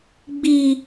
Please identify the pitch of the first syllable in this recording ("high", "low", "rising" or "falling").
high